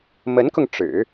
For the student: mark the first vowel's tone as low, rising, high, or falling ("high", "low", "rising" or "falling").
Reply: rising